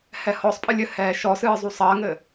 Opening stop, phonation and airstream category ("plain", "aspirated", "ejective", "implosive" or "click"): ejective